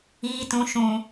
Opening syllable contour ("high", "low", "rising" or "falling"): low